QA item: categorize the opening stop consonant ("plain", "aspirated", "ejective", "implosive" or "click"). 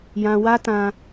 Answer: plain